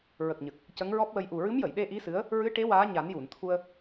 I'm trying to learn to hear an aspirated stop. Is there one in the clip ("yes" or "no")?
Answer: yes